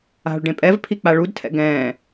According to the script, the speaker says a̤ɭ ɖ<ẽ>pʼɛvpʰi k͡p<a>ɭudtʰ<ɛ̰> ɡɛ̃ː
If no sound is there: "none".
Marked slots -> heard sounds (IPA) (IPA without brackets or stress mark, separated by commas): ẽ, a, ɛ̰